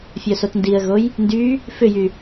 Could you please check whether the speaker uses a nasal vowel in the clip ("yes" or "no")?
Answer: no